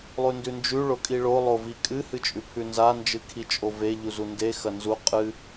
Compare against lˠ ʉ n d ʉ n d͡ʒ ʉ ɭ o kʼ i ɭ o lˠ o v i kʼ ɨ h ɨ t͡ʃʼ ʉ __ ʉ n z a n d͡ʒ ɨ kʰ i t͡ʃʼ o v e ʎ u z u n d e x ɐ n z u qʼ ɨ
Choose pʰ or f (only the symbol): pʰ